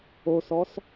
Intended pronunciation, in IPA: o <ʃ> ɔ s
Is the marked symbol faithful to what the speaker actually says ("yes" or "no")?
no